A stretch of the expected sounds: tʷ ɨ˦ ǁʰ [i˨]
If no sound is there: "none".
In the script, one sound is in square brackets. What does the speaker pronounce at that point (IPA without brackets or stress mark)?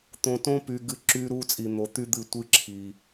i˨